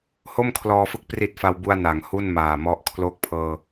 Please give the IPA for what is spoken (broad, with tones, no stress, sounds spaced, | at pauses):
h o˥˩ m kʰ l ɔː˧ f ɯ˦˥ k̚ p r i˨˩ t̚ f a˧ w b u˧ a̯ n a˩˦ ŋ h u˥˩ n m aː˨˩ m ɔ˥˩ ʔ kʰ l oː˦˥ k̚ pʰ ɤː˧